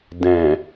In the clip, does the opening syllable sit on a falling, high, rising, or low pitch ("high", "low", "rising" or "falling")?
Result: low